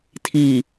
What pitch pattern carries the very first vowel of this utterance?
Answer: low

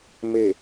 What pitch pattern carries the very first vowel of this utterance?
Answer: low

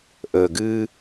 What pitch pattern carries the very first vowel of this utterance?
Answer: low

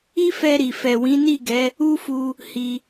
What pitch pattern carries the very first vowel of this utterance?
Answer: high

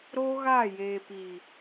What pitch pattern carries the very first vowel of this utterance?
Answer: high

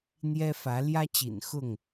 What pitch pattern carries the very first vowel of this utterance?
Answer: high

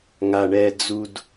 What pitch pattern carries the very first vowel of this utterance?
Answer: low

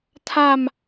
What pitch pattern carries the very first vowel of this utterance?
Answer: falling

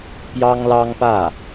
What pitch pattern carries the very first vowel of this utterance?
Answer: high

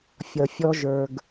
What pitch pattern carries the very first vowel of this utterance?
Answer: low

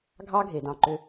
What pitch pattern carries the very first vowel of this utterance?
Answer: high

